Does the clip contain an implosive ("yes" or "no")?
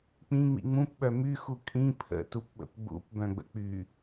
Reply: yes